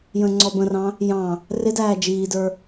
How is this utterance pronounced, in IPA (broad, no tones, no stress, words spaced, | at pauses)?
jə̃ːŋ͡ǀɔbə̃rɑ̃ | jɑ̃ | rɪdæː d͡ʒiːdə˞